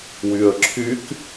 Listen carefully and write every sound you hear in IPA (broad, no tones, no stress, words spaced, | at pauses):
wyə̯ǁʰyk